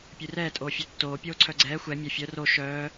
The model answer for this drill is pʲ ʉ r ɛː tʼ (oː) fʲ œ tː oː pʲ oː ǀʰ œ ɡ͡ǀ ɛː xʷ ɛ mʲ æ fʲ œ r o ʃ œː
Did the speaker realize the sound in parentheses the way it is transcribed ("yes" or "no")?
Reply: yes